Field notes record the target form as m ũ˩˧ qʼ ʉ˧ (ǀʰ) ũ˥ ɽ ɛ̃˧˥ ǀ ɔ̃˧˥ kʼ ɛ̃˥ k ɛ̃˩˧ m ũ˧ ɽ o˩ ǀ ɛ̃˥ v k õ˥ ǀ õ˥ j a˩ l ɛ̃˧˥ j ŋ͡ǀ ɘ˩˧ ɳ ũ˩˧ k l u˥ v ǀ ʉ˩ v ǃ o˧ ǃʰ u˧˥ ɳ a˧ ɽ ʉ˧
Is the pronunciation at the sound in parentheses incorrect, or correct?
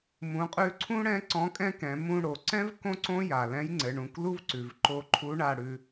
correct